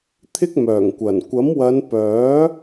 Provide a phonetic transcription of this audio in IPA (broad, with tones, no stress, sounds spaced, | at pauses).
t̪ʰ ɪ˥ k̚ m œː˨˩ ŋ kʷ ɐ˨˩ n kʷ ɐ˨˥ m w ɐ˨˧ n p œː˨˥